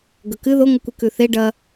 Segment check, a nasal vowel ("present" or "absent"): absent